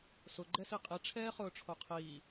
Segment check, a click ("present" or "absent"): present